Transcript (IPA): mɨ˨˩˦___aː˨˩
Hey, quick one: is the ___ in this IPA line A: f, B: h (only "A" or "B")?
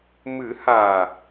B